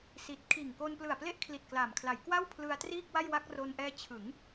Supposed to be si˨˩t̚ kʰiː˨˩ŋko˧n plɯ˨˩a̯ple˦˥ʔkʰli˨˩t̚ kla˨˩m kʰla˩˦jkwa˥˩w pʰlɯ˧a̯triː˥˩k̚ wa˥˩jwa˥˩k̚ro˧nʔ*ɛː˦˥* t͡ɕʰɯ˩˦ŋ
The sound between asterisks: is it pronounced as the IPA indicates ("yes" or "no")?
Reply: yes